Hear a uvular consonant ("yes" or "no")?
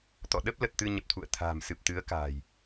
no